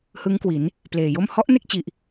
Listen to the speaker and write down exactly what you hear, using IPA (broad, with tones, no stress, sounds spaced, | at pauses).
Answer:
h ɯ˦˥ ŋ k w i˩˦ n | p l eː˨˩ j o˥˩ m h ɔ˦˥ ʔ n e˥˩ k̚ t͡ɕ i˨˩ ʔ